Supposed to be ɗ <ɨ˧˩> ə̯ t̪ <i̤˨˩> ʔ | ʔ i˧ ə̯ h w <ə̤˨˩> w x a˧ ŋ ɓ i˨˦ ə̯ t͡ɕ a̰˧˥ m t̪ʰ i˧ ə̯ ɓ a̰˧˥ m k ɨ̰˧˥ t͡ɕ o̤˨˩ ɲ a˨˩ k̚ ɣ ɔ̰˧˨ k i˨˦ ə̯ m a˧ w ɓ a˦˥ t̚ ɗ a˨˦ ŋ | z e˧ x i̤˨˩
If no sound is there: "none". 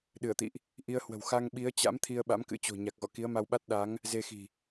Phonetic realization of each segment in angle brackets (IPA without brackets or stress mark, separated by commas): ɨ˧˩, ḭ˧˨, ə̤˨˩